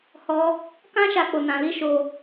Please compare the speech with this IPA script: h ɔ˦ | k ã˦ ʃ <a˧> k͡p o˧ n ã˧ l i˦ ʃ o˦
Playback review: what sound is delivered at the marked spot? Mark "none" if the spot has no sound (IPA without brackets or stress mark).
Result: a˧